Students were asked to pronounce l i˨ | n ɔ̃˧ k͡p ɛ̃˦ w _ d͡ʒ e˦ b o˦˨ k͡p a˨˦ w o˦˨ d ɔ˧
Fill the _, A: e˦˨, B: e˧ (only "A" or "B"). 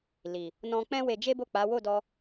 B